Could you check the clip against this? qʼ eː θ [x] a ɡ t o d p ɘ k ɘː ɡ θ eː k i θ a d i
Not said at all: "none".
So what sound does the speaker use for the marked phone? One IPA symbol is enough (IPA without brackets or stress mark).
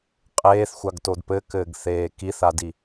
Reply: xʷ